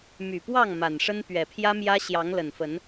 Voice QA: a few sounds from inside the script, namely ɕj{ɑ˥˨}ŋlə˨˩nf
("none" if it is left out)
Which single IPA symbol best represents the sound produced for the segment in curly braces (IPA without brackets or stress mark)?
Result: ɑ˨˦